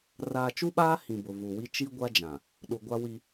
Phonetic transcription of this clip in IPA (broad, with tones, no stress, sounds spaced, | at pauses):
r aː˨ t͡ʃ u˦ ɓ aː˦ h ĩ˨ b ʊ˨ v u˨ w i˦ t͡ʃ i˦ ɡʷ a˦ d͡ʒ ã˨ | ɗ u˨ ɡʷ a˦ w i˦